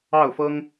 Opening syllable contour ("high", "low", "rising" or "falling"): falling